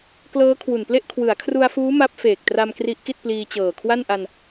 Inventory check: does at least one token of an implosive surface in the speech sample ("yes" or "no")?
no